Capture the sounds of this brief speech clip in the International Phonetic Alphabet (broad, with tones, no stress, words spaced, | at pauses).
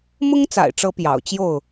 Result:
mʊ˦ŋt͡sa̰˨˩ɪ̯ʈ͡ʂɤ˨˦ pjɑ̰˨˩ʊ̯t͡ɕjo˥˨ʊ̯